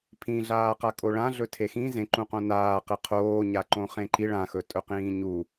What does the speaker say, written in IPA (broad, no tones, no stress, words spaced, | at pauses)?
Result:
pʰĩɮaːqakʼo ɭãɮɵ tʰexĩ zẽǃũqõ naːqe qʰoːɲa ǃõχẽǃi ɭãxɵ tʼɵqĩːɲu